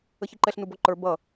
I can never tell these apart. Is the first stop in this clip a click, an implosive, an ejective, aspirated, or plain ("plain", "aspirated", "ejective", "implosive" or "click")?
click